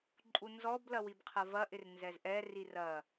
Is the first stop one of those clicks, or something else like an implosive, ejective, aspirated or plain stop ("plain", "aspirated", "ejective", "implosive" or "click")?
click